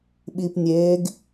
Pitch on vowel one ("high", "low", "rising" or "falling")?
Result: low